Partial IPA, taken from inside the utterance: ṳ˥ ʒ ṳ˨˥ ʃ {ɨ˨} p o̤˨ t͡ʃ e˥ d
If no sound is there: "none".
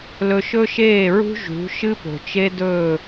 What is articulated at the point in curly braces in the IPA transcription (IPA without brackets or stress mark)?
ɨ˥